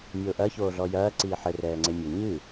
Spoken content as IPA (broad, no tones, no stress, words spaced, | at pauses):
mʲoːʔɐ çoːɮɔjɐː ǀiːħɘ rɛːŋ͡ǀemʲɘ ɲɨ